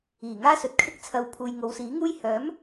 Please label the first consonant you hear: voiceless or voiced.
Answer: voiced